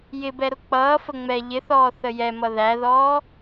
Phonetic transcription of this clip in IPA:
j ɪ b ɛ ɾ ʊ k͡p ʌː f ə ŋ͡m ɛ ʎ ɪ θ ɔː θ ə j ɛ m ʌ ð æ ð ɔː

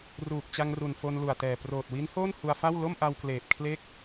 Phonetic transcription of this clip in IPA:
r uː˨˩ k̚ t͡ɕ a˧ ŋ r u˨˩ n f o˧ n l u˨˩ a̯ t ɛː˨˩ p r oː˨˩ t̚ w i˦˥ n h oː˥˩ n h u˧ a̯ f a˥˩ w l o˥˩ m ʔ a˧ w k l eː˨˩ p̚ kʰ l e˥˩ k̚

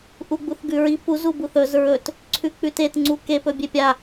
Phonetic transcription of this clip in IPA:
ʔ u ɡ͡b u θ ɡ ʉ ɹ i p u z u b u θ ɵ z ɹ ɵ t | ǀʰ ʉ k͡p ʉ t e t ŋ͡ǀ u k e p ɵ bʲ e pʲ a

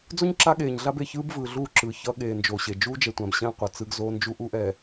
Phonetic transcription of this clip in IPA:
d͡z o˦ ɲ ǁ a˦ ɠ eː˨ ɲ ɮ a˦ b e˨ ç ɯː˦ b v ɯː˨ ɮ uː˦˨ ǁ ɯ˨ ç ʌ˦ ɠ eː˨ n d͡ʒ oː˨ ɕ e˨ d͡ʒ uː˦ d͡ʒ ɛ˨ tʷ ã˨ b ɕ ɛ̃ː˦ qʷ ʌ˨ t͡s ɯ˦ ɡ z oː˦ n d͡ʒ u˦ ʔ u˦ ʔ ɛː˨

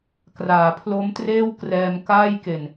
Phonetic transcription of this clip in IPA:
k r aː˩˦ pʰ l o˦˥ m t r eː˥˩ w k r ɛː˧ m k aː˥˩ j k e˨˩ n

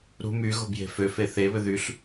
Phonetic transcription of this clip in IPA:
ɾ ṳ m y ɣ o̤ b j e̤ f ø f e θ e β ʏ ð y ɬ

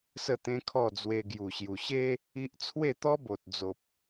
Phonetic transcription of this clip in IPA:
s ə˥˧ t̪ ẽ˦ kʰ ɔ˥˧ d͡z w e˧ ɡ j u˨˩ ɕ j u˨˩ ɕ e˦ | i˦ ʔ t͡sʰ w e˥˧ t̪ ɔ˦ b o˨ t̚ d͡z o˨ p̚

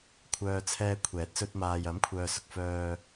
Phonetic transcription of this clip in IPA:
kʷʰ œː˧ t͡sʰ ɛː˧ kʷʰ ɛː˨˥ t̚ s ɵ˧ t̚ m aː˨ j ɐ˨˥ m kʷʰ œː˨ s ʊ˨ k̚ f œː˨

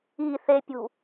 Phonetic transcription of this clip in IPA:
i θ e pʲ ṳ

